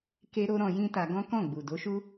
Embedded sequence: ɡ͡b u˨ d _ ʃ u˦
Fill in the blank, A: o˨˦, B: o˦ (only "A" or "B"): A